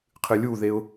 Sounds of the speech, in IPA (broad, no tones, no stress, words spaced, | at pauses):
qʰɨlʲuðeʊ̯